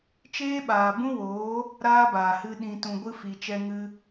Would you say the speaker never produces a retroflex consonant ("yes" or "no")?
yes